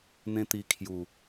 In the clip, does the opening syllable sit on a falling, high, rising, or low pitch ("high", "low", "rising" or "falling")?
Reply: high